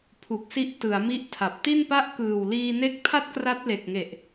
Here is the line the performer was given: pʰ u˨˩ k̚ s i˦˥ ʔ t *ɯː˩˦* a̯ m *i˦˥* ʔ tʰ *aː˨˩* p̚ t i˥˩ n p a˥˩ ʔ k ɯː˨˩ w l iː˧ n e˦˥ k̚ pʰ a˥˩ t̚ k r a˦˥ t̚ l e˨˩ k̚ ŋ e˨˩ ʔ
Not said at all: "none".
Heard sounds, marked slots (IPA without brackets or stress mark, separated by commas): ɯ˩˦, i˦˥, a˨˩